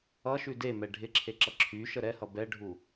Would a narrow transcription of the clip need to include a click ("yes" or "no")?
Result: yes